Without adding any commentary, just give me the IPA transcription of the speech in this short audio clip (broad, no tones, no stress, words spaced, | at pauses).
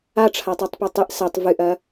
aʈ͡ʂʰatˤutˤpɵ tˤɨʔ sɐtˤ vɨʔɐ